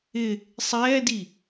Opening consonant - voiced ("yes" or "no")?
no